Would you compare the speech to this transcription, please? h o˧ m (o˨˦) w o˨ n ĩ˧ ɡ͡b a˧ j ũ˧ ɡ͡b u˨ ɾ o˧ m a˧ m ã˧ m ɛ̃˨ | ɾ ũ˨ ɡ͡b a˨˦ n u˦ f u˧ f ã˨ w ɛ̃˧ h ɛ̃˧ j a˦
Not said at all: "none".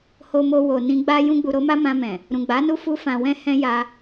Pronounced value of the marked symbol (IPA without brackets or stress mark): o˧